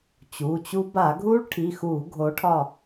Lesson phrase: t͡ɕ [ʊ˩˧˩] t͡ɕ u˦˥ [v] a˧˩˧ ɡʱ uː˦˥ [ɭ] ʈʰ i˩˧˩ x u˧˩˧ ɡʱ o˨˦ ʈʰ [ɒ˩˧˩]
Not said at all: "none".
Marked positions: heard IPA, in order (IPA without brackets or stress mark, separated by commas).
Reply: u˩˧˩, b, ɭ, ɒ˦˨